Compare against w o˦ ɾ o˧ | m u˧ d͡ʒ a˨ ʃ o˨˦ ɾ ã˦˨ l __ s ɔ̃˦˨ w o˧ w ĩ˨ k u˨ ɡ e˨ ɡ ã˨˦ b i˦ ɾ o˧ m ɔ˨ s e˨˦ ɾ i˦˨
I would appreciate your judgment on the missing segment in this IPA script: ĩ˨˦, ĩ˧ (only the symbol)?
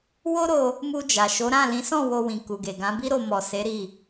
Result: ĩ˨˦